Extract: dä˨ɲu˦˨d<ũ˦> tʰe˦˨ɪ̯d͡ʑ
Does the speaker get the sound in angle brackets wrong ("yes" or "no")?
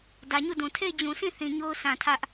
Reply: yes